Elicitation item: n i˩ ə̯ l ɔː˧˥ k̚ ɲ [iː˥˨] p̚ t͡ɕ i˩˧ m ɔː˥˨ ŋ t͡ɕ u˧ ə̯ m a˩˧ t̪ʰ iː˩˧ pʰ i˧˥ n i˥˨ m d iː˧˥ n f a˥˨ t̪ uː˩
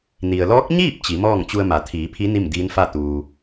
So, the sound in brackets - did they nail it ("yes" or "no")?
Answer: yes